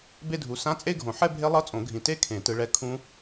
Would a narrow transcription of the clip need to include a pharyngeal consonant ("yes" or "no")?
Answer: yes